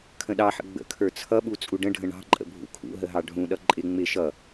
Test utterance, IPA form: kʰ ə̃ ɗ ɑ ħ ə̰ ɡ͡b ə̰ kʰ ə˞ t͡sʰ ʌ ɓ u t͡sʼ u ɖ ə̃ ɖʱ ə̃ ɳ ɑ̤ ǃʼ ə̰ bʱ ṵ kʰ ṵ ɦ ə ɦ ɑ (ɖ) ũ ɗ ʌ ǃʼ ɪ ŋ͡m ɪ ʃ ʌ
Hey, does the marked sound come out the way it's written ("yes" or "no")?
no